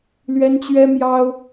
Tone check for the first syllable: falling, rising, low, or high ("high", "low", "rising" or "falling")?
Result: high